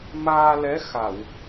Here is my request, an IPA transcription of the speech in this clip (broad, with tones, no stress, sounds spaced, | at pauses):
m aː˧ l ɛ˧˥ x a˨˩˨ w